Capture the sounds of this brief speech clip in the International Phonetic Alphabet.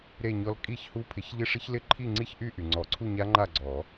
ɾe˥˧ɲɔ˦˥l kʼi˥˧çhu˦˥ pʰɪ˨˩˦çʎɪ˦˥ʂɪ˦˥ç lɪ˥˧ǃʰi˥˧ŋ͡ǀi˥˧çʔy˥˧ ʔy˩ŋ͡ǀɔ˨˩˦ǀʰu˥˧ɲa˦˥ ŋ͡ǃa˥˧ɡ͡ǀɔ˨˩˦

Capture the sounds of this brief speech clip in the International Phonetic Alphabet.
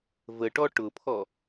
vəʈɔ ʈʊpʰɔ

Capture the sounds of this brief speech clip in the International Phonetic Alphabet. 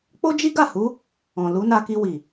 k͡po˦d͡ʒi˦ɡa˦˨hu˨˦ | ɔ̃˨ lu˨˦na˧ki˧ wi˨

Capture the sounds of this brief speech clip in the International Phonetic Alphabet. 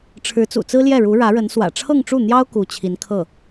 ʈ͡ʂʰɻ̩˧˥t͡sṵ˨˩t͡sɹ̩˥ljɛ˥˩ ɻu˧˥ɻä˧˥ɻə˧˥n swä̰˨˩ʈ͡ʂʰɤ˥˧ŋʈ͡ʂu˥˩n̪jɑ˥ʊ̯ ku˧˥t͡ɕʰi˧˥nkʰɤ˥˩

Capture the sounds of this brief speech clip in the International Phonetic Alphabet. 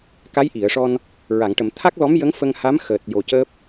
ka˧˥jʔi˨˩˨ə̯ʂɔ˧n | ɹa˨˩˨ŋ ʈə˨˩˨mt̪ʰa˦˥k̚lɔ˧˥mjə˧˥ŋ fə˧ŋha˧˥m xəː˨˩t̚jo˨˩cəː˦˥p̚

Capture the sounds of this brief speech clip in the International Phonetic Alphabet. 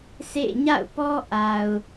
sʰḛ˦˨ ɲa̰˦˨ʊ̯pɔ˦ ʔa˨ʊ̯

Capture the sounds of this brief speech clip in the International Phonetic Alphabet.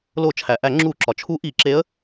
lo˧˩˧t͡ʃʰæ˩ʔæ˧˩˧ ŋ͡ǁu˧˩˧ǁɒ˩t͡ʃʰu˧˥ ʔi˧˩˧ǁe˧˥ə̯

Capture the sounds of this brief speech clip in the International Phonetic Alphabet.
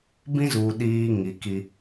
bĩ˦zuː˨ ɗiː˦ŋi˨ki˦

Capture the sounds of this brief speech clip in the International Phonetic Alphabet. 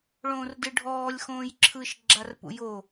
ɭõːrdɯɖʱɔːlʲ xõːjǁʰɯʃ ɡ͡ǁarpṵjo

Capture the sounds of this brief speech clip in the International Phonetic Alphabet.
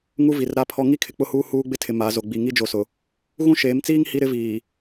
ŋu˦vi˨rɾa˦pʰɔ˦ ŋi˦kʰɪ˨k͡pʊ˦huː˦ huː˦ɡ͡bɪ˦tʰɪ˨ ma˨˦zo˨ ɡ͡bi˨ŋi˦d͡ʒo˨sʊ˨ | ɣũ˦ʃeː˨˦mt͡siː˦ŋ hi˦ɾɪ˦viː˨

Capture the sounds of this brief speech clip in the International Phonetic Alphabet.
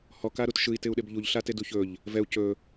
hɔkaɾut ʃɯi̯tɪu̯ɗɪb ʎuʎɬatedu çɵʎ | vɛu̯ cɵ

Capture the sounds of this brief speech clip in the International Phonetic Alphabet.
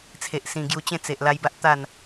t͡sʰe˨ʔsĩ˨˩ɡju˧t͡ɕẽ˥˧ t͡se˨ʔ la˧jba˦ʔ t̪a˥˧n

